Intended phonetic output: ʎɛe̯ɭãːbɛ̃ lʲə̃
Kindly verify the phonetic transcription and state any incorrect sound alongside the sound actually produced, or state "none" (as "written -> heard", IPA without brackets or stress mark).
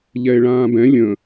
none